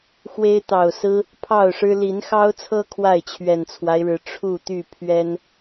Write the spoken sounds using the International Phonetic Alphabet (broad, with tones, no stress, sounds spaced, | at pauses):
x w e˦ ɪ̯ t̪ ɑ˨˩ ʊ̯ s ɹ̩˦ | pʰ ɑ˥˨ ʊ̯ ʂ ɻ̩˦ l i˨˦ n x ɑ˦ ʊ̯ t͡sʰ ɤ˦ kʰ w a˥˨ ɪ̯ t͡ɕʰ ɥ ɛ˨˩ n t͡sʰ w a˦ ɪ̯ ɻ ɻ̩˨˩ ʈ͡ʂʰ u˥˨ t̪ y˥˨ pʰ ɥ ɛ˦ n